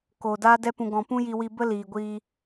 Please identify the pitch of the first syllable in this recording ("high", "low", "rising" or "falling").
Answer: low